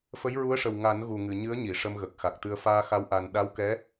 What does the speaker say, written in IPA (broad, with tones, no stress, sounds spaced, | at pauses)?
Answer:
f ə˧˥ j ɹ u˧˥ ə̯ ʂ ə˨˩ w ŋ a˨˩˦ n ɣ u˨˩ ŋ ɨ˨˩˨ ɲ ɨ˧˥ ə̯ ɲ i˨˩˨ ʂ ə˧ m ɣ ə˨˩ k̚ x a˨˩ k̚ t̪ ɨ˧ ə̯ f aː˧ x a˧˥ w ʔ a˧ n ɗ a˧˥ w k ɛ˧˥